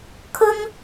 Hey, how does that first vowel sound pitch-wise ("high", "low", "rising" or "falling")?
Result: high